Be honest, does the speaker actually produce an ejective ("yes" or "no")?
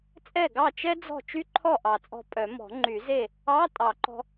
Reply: yes